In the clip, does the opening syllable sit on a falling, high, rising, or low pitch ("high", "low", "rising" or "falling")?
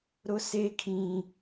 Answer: high